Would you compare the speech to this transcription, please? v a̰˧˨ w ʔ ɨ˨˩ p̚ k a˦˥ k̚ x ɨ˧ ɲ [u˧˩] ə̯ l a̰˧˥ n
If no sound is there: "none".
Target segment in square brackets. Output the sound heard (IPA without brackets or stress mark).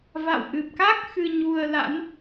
u˧